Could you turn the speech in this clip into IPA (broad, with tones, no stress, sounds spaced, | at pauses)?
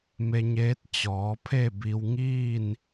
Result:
m e˧ ɲ eː˧˥ t̚ t͡ɕ ɔː˩˧ pʰ e˥˨ b i˧ w ŋ iː˥˨ n